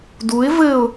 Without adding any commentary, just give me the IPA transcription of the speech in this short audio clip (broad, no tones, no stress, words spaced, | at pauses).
duɪ̯ vɘʊ̯